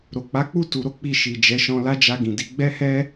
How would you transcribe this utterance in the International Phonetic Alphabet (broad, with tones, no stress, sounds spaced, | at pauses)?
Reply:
ɾ o˨ k͡p a˨˦ k͡p u˦˨ t u˧ ɾ o˦ k͡p i˦˨ ʃ i˨ d͡ʒ ɛ˨˦ ʃ ɔ̃˧ l a˦ d͡ʒ a˧ ɡ ĩ˨ d i˨˦ ɡ͡b ɛ˦ h ɛ˦